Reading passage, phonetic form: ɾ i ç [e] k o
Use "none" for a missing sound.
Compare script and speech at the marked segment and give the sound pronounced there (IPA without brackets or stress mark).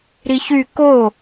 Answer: y